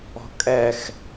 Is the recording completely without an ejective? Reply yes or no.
no